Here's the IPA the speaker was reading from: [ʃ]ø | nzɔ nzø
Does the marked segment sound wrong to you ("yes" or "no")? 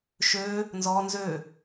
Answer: no